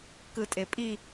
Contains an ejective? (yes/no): yes